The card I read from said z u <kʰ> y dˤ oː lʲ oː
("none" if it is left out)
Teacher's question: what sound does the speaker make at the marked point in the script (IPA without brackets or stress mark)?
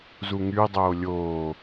ŋ